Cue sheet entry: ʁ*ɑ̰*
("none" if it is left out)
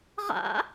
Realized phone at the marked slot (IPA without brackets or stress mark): a̰